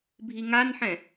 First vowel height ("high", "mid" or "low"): high